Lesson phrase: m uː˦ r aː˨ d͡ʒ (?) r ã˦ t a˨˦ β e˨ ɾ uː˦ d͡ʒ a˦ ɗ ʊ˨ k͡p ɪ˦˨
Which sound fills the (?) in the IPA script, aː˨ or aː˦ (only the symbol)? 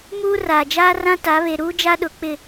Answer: aː˦